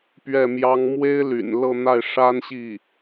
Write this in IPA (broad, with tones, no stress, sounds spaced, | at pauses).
p ɥ ɛ˥˩ m j ɑ˥ ŋ m w e˥ ɪ̯ l y̰˨˩ n l ɤ˥˧ n̪ a˥˩ ɪ̯ ʂ a˥ n ɕ i˥˩